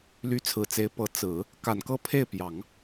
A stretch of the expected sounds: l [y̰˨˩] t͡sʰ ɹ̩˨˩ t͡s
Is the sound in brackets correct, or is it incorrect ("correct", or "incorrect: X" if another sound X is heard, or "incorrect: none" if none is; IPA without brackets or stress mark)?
incorrect: y˧˥